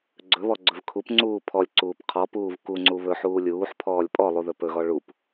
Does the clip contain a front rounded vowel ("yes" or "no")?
no